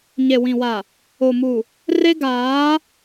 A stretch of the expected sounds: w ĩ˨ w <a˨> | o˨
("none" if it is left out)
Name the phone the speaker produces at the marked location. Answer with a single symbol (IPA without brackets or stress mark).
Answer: a˨